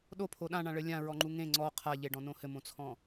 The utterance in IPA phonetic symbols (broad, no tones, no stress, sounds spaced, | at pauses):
ɗ o pʰ o ɗ ã ɳ ã ɭ ɘ lʲ ã ɹ ɔ ŋ͡ǃ u ŋ ẽ ŋ͡ǀ ɔ qʰ a ʎ e ɖ ɔ̃ n õ h ɘ m õ t͡sʰ ɔ̃